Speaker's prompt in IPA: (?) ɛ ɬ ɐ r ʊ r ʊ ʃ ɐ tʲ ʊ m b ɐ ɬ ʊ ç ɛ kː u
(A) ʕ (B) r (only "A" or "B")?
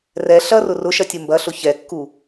B